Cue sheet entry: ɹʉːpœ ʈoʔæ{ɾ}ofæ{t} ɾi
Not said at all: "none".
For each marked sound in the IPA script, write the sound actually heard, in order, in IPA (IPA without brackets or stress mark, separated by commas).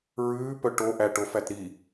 ʈ, t